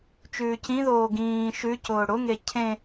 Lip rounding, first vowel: rounded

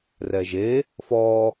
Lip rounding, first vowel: unrounded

